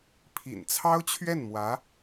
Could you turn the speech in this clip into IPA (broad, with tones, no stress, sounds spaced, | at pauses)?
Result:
pʰ ḭ˨˩ n t͡sʰ ɑ˥ ʊ̯ t͡ɕʰ ɥ ɛ˥˩ n m w ä˧˥